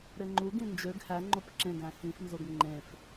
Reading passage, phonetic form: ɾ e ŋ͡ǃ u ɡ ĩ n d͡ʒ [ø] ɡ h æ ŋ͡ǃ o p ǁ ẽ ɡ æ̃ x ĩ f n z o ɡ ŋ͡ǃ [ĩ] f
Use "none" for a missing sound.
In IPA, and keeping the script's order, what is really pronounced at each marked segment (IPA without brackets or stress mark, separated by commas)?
ø, ẽ